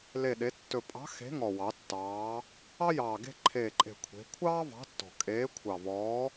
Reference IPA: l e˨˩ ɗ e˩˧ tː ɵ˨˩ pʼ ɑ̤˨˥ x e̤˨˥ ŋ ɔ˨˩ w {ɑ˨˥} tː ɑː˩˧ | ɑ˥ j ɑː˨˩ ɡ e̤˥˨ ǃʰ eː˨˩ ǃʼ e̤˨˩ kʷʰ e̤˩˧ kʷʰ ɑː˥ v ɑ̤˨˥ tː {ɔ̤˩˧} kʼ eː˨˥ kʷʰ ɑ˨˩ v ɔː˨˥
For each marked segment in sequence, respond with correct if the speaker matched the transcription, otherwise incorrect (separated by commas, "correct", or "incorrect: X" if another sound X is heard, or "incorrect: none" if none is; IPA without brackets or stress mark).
incorrect: ɑ˩˧, incorrect: ɔ̤˨˩